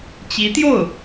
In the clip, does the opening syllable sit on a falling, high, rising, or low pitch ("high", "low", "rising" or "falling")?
rising